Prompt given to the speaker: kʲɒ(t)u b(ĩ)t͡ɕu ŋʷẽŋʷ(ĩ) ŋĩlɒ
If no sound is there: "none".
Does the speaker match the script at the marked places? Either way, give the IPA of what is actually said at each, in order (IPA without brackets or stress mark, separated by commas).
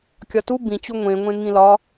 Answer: t, ĩ, ẽ